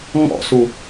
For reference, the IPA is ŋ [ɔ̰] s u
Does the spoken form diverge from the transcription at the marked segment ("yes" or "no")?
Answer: no